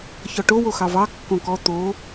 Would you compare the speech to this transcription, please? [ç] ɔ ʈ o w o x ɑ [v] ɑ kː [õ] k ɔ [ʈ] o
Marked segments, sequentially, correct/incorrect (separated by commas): correct, correct, correct, incorrect